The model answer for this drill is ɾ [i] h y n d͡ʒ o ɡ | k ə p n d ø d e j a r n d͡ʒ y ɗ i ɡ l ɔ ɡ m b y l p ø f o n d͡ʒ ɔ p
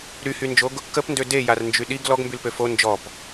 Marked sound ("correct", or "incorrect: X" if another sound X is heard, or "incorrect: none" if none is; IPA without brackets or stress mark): incorrect: y